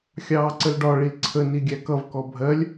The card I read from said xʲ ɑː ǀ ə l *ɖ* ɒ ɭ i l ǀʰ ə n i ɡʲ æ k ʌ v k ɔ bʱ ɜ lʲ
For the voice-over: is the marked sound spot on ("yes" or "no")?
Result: yes